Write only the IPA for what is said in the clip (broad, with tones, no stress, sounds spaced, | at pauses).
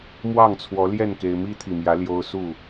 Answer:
m w ɑ˥˨ ŋ t͡sʰ w ɔ˨˦ l j ɛ˥˨ n k e˦ ɪ̯ m i˦ t̪ʰ i˨˩ m j ä˨˦ l j o˦ ʊ̯ s u˥˨